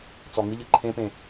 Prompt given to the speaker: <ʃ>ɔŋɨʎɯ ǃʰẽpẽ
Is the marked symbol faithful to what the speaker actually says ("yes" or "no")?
no